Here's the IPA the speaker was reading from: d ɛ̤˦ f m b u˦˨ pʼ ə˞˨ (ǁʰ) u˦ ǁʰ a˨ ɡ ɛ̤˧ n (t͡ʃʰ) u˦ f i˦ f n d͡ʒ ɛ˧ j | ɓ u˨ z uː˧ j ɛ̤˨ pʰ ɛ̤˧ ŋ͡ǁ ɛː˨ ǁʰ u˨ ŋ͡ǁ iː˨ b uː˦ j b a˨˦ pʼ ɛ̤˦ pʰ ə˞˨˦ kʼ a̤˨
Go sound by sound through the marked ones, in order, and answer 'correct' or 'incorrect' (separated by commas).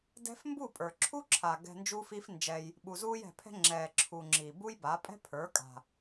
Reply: correct, incorrect